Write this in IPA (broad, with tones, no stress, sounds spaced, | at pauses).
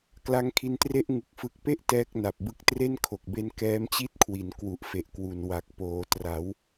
k l a˦˥ ŋ kʰ i˧ n t r e˥˩ ʔ ŋ ɯ˨˩ k̚ f ɯ˨˩ k̚ p e˥˩ ʔ t ɛː˦˥ k̚ n a˨˩ p̚ b ɯ˦˥ k̚ t r e˥˩ n kʰ o˨˩ k̚ b e˧ n k ɛː˦˥ m t͡ɕ i˥˩ t̚ kʰ w i˩˦ n k w u˨˩ ʔ f e˨˩ ʔ k w u˨˩ n w a˨˩ k̚ p oː˩˦ t r a˩˦ w